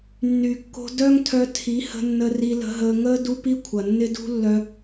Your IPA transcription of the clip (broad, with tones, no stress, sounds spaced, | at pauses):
nː y˨ kː o̤˧ d œ˦ ŋ tʰ œ˧ tʰ i˨˦ h ə̤˧ nː ə˧ r i˧ l ə̤˧ ɦ əː˧ ŋ əː˦ d u˦ p i˦ kʷʰ ɐ˨ nː ɪ˦ d ṳ˦ lː œ˧